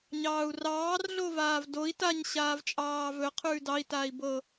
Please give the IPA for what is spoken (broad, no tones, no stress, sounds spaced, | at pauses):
ɲ ɑː u̯ r ɑː r ɮ o v aː v d o i̯ t a ɲ ɕ aː v t͡ʃʼ ɑː v ɵ qʰ ʉː d ɑ i̯ t aː i̯ b ɤ